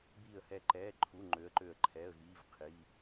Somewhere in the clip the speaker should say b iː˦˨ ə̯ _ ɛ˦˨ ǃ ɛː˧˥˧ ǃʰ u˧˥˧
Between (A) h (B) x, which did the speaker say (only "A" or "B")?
A